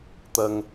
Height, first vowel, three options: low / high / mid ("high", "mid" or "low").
low